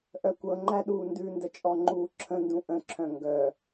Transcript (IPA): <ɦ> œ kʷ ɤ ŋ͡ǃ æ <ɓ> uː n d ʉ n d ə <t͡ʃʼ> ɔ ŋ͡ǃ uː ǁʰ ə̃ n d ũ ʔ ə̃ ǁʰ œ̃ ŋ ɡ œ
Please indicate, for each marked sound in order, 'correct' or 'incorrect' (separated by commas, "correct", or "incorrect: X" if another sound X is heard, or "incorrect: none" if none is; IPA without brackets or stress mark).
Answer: incorrect: ʔ, incorrect: ɗ, correct